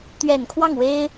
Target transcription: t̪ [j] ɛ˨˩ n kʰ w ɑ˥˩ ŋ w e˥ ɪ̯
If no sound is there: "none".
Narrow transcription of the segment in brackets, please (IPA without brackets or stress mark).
ɥ